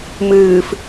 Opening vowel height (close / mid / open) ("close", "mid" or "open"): close